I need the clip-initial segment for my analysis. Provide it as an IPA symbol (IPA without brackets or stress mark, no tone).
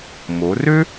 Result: m